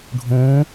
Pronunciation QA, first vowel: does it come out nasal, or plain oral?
nasal